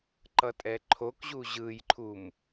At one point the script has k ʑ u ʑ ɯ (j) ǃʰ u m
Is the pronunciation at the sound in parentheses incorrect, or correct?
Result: correct